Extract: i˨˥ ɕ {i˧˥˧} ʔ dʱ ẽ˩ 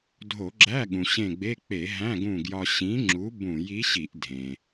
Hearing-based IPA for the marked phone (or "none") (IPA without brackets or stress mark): i˧˩˧